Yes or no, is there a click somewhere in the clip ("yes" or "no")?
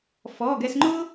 yes